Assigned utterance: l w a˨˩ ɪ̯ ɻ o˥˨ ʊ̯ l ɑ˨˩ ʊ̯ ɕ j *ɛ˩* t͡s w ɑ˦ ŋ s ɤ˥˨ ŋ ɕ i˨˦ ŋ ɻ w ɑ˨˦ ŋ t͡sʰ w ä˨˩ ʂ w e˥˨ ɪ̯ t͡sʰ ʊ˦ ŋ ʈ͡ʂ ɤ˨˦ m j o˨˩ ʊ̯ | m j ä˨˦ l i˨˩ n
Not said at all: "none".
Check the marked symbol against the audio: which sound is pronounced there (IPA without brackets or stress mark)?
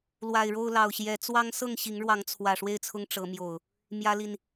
ɛ˨˦